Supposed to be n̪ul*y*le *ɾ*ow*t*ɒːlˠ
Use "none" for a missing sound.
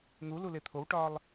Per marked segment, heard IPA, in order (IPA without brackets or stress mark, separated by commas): u, t̪ʰ, ʈ